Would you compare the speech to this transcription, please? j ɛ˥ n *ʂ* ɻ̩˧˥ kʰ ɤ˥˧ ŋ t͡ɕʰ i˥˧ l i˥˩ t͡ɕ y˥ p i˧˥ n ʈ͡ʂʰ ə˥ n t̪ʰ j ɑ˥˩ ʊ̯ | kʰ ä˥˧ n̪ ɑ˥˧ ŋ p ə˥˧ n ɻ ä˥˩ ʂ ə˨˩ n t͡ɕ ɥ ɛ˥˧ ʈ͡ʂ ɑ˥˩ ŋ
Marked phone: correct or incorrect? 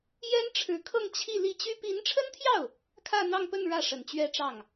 incorrect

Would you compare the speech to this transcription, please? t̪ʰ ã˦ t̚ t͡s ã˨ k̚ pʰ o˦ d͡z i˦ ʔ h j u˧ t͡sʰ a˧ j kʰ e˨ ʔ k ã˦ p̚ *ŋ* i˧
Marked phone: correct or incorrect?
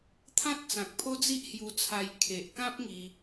correct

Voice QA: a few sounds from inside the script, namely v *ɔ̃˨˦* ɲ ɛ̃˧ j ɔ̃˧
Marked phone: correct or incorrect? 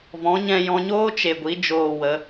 correct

